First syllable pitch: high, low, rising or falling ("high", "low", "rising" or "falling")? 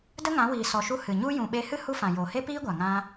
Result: high